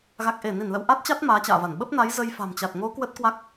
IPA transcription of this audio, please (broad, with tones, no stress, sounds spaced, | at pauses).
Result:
ɣ a˨˩ k̚ ʔ e˧˩ n i˧˩ n l ə̰˧˨ w ʔ a˦˥ t̚ t͡ɕ a˦˥ t̚ m aː˨˦ t͡ɕ a̰ː˧˨ v a˧˩ n ɓ ə˦˥ p̚ n a˨˦ j z ə˧ j f a̤˨˩ m t͡ɕ a˨˩ t̚ ŋ o˨˦ k w ə˦˥ t̚ k w a˦˥ k̚